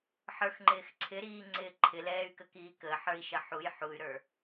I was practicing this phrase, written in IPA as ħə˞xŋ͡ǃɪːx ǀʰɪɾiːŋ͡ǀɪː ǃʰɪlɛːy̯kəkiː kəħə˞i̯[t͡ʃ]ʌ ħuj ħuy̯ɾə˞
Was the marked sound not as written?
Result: yes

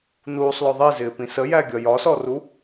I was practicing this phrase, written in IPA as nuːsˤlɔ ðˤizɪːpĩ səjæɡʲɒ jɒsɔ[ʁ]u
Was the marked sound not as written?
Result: yes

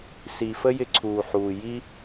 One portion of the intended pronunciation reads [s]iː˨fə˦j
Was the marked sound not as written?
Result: no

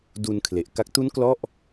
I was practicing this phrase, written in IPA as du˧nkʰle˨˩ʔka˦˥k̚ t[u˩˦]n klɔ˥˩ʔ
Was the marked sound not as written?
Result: yes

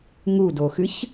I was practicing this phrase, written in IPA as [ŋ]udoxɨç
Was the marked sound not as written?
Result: no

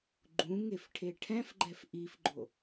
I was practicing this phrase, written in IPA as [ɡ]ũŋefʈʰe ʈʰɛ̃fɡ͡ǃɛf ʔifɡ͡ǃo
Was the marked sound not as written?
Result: yes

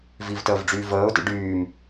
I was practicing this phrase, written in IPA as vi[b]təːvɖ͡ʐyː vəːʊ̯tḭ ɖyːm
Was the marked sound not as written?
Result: yes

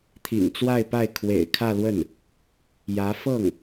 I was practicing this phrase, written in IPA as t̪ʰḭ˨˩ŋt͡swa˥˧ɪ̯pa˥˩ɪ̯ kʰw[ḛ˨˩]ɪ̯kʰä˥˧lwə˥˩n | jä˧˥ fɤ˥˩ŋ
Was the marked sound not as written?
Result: no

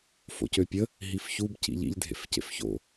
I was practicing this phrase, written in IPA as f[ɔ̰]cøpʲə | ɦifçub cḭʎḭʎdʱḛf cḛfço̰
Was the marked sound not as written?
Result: yes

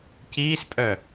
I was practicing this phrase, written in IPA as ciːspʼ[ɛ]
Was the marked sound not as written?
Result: yes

